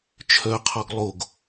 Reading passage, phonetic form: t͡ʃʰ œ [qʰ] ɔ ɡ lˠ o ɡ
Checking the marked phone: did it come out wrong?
no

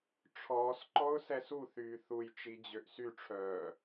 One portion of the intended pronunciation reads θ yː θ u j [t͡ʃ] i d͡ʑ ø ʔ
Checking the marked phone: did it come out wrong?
no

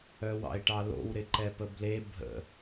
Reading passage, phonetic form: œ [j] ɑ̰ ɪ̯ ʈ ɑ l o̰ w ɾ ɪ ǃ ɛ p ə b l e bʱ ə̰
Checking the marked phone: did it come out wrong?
yes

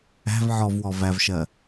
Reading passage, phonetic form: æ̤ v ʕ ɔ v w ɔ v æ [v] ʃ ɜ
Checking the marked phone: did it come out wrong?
no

